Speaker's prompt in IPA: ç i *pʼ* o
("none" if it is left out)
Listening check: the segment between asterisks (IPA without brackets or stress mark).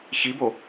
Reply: b